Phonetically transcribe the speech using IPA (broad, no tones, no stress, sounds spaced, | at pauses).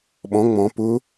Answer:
ɓ ɔ̃ ŋ͡m ɔ̃ p ʊ